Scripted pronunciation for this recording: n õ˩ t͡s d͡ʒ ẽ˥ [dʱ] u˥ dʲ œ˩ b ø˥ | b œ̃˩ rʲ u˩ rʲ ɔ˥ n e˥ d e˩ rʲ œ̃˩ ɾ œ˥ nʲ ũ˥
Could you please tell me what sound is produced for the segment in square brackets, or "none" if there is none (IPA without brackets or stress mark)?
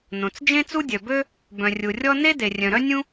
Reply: t͡s